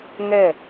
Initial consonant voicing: voiced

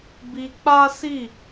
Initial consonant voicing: voiced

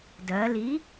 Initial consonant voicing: voiced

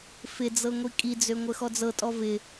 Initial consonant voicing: voiceless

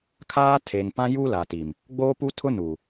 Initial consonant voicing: voiceless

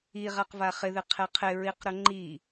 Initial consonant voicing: voiced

